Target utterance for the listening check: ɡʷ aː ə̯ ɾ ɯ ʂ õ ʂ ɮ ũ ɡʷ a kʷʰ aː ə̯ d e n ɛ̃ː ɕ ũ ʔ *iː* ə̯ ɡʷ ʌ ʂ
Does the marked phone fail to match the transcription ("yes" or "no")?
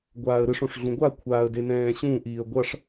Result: no